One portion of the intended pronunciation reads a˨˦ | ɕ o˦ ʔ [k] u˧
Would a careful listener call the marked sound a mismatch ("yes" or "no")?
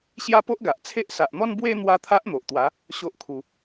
yes